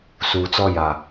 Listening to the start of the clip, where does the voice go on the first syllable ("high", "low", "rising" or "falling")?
low